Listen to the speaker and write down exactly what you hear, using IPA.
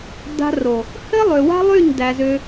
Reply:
d a̤˧ r o˨ | h ɘ˦ lˠ ø˨ w a̤˦ lˠ y˦˨ ɲ d æ˧ z ø˦

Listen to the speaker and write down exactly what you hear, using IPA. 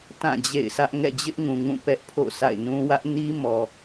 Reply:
t ã˦˨ d͡ʑ ḛ˦˨ ɪ̯ sʰ ä˦ ʔ ŋ ɛ̰˦˨ d͡ʑ ɪ˦ ʔ ŋ ũ˨ ŋ ũ˦˨ p ɛ˦ ʔ pʰ o̰˦˨ sʰ a̰˦˨ ɪ̯ n ũ˦ w ä˦ ʔ n i˦ m ɔ˨

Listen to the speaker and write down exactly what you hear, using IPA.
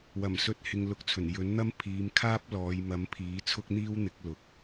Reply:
w ɐ˨˩ m s ɵ˧ t̚ h ɪ˧ ŋ l ʊ˧ k̚ t͡sʰ ɵ˨˩ n j ɵ˨˥ n n̪ ɐ˥ m pʰ iː˨˧ m kʰ aː˥ p̚ l ɔː˨˧ j m ɐ˨˥ m pʰ iː˨˥ t͡sʰ ʊ˥ k̚ n̪ iː˥ w n̪ ɪ˨˥ k̚ l ʊ˨ k̚

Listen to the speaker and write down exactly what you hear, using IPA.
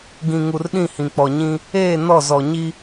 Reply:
ɡ ĩ˨ ŋ u˨ r ɗ ĩ˦˨ h ĩ˨ k͡p ɔ˨ ɲ ĩ˦ | eː˦˨ n ɔ˦˨ z ɔ˨ ɲ i˦

